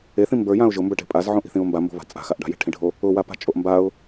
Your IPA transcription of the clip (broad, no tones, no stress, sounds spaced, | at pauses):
e θ ĩ m b ə˞ j ã ʊ̯ ʒ ʊ m b ə˞ ʈ e̤ pʼ a z ʕ õ ʔ i̤ θ ĩ ʊ̯ m b a m b o̤ β a̤ t͡sʼ a̤ x a ʔ ɖ a̤ j e̤ ʈʰ ĩ ɖʱ o | ʊ w a p a̤ t͡ʃʼ o ʔ m b a ʊ̯